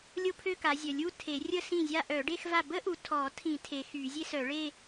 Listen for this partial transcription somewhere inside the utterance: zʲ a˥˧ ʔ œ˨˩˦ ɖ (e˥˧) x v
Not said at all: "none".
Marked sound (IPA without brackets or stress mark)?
e˥˧